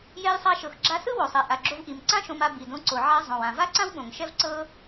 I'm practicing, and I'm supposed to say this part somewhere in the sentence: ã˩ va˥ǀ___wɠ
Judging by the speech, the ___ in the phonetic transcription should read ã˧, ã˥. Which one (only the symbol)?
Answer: ã˥